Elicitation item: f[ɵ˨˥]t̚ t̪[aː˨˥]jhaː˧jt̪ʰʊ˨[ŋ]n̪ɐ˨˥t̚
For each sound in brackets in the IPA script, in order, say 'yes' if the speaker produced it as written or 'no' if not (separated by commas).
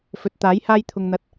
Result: yes, yes, yes